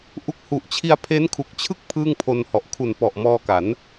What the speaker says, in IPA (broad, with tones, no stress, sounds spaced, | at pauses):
ʔ u˦˥ k̚ h u˨˩ ʔ t͡ɕʰ i˧ a̯ pʰ e˦˥ n kʰ u˨˩ k̚ t͡ɕʰ ɯ˥˩ k̚ pʰ ɯː˥˩ ŋ pʰ o˧ n h ɔ˨˩ ʔ kʰ u˨˩ n p ɔ˨˩ ʔ m ɔː˧ k a˩˦ n